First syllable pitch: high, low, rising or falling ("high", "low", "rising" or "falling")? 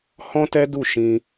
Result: high